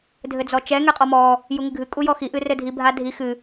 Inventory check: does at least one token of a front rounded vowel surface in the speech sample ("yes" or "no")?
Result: no